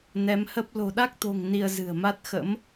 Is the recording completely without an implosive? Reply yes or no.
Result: no